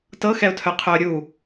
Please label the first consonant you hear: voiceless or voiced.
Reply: voiceless